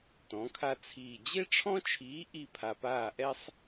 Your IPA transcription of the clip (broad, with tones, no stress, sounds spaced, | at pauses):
t ɔ̃˨˥ kʰ a˥ t͡sʰ iː˦˨ d͡ʑ e˥ ʈ͡ʂʰ ɔ̃˥ t͡ʃʰ iː˨˥ ʔ i˦˨ pʰ a˨ p aː˦˨ ʔ ɛ˥ sˤ